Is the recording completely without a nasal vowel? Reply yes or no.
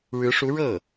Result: yes